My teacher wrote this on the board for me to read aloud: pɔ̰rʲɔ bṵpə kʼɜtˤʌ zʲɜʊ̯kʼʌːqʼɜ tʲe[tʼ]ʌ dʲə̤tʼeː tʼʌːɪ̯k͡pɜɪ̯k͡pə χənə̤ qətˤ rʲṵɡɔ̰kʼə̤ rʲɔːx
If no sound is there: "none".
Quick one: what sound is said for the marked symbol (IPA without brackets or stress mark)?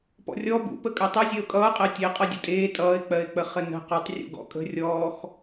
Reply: qʼ